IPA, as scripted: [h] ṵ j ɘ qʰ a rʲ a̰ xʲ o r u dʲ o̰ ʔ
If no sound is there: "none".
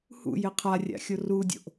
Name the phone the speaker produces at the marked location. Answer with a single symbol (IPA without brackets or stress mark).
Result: h